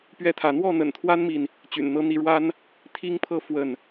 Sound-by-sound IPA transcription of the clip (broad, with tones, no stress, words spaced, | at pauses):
pɥɛ˥˨t̪ʰä˨˦ n̪wɔ˥˨n̪ə̰˨˩nt̪ʰwa˦nmi˨n | t͡ɕy̰˨˩n n̪ɤ˨˦n̪i˨˦ɻwa˦n | t̪ʰi˦ŋpʰɤ˥˨ fwə˥˨n